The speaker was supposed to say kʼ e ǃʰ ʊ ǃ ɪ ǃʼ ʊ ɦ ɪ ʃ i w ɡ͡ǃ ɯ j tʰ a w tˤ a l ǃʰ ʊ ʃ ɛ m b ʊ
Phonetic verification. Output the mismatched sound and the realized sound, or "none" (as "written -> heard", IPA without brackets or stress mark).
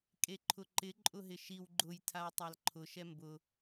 ɯ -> ʊ